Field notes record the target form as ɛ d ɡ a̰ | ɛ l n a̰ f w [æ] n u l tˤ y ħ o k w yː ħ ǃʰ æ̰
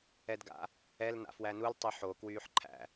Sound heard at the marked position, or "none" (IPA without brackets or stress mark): æ